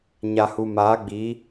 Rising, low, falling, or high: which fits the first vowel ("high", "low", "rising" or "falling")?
low